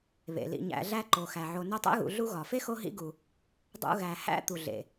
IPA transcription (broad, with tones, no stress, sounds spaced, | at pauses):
β ḛ˩ l ḭ˨ ɲ æ̰˨ ɮ æ˦ ǃ o˩ x æ˩ ʕ o˨ n o˦ tˤ ḛ˥ ɣ ṵ˨ ɮ u˦ ɣ ɒ˩ f e˥ x o˦ ɦ ḭ˦ ɡ u˩ | dˤ ṵ˦ ɣ æ˨ h æ̰˥ t̪ u˩ ɮ ḛ˩